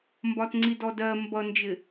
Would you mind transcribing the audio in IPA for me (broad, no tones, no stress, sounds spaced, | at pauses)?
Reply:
m b ɒ t ŋ͡ǀ i d ɔ d ɜ m b ʌ n d͡ʒ ɪ